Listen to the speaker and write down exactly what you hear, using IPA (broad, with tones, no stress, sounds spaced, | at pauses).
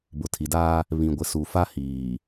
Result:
b ʊ˨ tʰ i˨ d aː˦ | β ĩ˨ ɡʷ ɪ˨ s u˨ f a˦ h iː˨